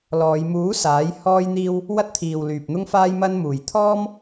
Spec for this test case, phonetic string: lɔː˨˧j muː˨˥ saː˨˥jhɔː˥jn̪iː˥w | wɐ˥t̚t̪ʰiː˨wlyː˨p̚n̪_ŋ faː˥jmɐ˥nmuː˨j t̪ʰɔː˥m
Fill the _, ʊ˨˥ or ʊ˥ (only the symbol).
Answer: ʊ˥